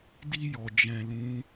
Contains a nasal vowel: yes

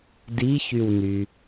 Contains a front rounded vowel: yes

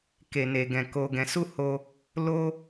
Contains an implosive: no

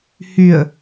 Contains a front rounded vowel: yes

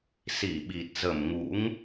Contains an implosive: yes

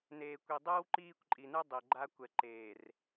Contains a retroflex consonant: no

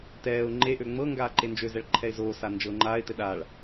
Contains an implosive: yes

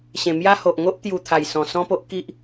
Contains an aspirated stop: yes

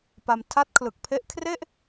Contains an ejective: no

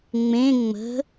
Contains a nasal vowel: yes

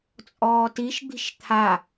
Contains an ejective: yes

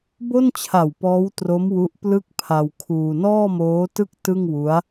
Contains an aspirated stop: yes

